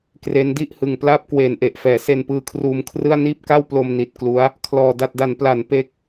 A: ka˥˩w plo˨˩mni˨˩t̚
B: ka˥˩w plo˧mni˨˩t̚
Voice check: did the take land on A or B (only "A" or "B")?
B